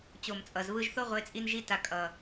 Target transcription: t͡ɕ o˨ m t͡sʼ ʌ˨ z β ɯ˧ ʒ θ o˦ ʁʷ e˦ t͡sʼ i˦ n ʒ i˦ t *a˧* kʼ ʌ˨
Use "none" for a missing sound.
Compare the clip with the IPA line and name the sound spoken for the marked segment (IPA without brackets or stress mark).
a˧